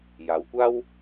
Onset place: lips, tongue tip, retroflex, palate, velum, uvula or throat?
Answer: palate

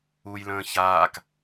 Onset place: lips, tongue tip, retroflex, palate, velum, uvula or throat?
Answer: palate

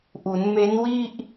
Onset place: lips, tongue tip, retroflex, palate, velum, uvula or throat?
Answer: throat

